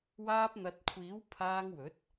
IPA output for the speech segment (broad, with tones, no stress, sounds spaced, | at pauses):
w aː˧ p̚ n̪ ɐ˨ t̚ kʷʰ iː˨˥ w pʰ aː˧ ŋ w ɵ˨˥ t̚